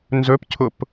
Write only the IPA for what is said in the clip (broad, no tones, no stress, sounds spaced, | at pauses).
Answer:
n z ɵ p cʰ ʊ p